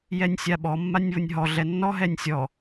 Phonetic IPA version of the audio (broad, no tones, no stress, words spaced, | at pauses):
jɛnʲsʲaɓɔ mːanʲβʊnʲɦɔ ɮɛnːɔ ɦɛnʲsʲɔ